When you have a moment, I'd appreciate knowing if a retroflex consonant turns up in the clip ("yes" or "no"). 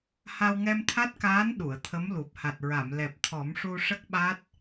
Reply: yes